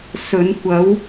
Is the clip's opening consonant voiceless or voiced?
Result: voiceless